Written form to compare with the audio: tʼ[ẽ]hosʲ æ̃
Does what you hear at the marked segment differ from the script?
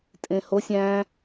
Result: no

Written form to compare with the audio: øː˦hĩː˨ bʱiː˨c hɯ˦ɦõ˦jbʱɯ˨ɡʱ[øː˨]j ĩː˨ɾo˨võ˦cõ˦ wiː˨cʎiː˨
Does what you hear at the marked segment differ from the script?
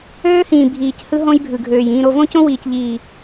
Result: no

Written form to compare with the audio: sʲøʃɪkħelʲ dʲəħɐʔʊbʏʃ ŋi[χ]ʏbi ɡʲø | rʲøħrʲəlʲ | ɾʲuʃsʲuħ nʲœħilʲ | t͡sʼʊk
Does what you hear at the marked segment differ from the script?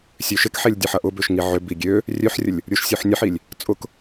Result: yes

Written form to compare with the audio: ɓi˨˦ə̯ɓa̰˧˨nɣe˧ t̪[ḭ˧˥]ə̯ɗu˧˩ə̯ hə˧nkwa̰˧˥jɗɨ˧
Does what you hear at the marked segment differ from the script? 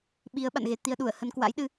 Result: yes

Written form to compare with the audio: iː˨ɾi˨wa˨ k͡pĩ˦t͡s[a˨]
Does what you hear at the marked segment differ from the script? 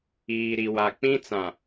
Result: yes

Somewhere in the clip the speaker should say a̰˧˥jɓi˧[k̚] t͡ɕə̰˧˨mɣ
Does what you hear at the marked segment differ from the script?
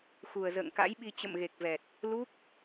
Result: yes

